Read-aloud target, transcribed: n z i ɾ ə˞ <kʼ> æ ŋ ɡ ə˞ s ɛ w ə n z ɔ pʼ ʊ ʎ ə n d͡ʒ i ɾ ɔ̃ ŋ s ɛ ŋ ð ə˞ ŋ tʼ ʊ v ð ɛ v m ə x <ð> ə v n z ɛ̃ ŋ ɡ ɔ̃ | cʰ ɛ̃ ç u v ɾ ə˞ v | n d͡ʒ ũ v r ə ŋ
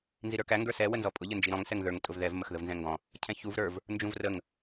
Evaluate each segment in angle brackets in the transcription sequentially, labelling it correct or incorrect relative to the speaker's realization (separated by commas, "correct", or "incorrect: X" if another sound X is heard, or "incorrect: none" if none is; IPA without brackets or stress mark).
incorrect: k, correct